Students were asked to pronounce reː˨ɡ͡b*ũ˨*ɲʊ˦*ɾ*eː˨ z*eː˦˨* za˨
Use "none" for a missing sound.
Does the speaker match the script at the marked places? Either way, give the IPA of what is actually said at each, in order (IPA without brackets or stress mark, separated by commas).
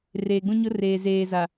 ũ˦, r, eː˨